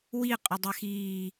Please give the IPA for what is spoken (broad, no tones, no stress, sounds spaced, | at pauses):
w i qʼ ʏ dˤ ɛ x iː